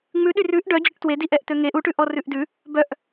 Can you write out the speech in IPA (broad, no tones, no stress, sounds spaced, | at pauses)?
ŋ͡m ʉ ɗ y r ʉ ʔ ɖ œ d͡ʑ ɵ ʈ t w e d i ʔ ɛ ʔ t̪ ø ŋ e ʔ u ʈ ʉ ʔ ɔ r ʉ ʔ d ʉ | b œ ʔ